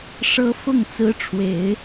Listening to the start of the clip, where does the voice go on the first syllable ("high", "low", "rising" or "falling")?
high